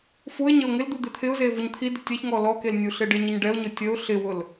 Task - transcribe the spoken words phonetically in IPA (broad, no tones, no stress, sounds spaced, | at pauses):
f u ɪ̯ ɲ ə ʊ̯ ŋ ɪ l d̪ u d̪ ɪ t̪ʰ ɪ ʊ̯ z e v ʊ ɲ t̪ʰ i d ɪ tʲ ɛ ç ŋ ɔ l ɔ k e l nʲ u ɬ ɪ ɖ ɪ ɲ ə ɲ ɖ ɛ ʊ̯ ɲ ʊ tʲ ə ʊ̯ ɬ ɪ w ʊ l